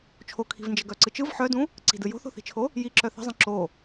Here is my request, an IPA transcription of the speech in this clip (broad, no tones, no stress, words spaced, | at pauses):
t͡ʃʰokʰi̤vnd͡ʒə ɡœǀɯt͡ʃɯv ħœdũ | ǀi̤dɯ jo̤θo̤θi̤t͡ʃʰo | jiǁœ θə̤zˤə̃ ǁo